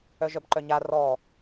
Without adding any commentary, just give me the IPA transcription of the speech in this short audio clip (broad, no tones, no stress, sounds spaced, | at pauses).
œ ʒ œ b ǃ œ ɲ a r ɔ